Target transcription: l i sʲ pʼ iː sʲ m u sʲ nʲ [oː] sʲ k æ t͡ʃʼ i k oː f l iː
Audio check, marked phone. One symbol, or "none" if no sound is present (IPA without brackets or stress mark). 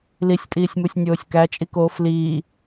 oː